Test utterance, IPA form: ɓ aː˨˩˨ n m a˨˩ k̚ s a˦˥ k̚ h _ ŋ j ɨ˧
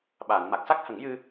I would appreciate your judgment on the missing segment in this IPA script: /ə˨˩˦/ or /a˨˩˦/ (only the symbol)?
ə˨˩˦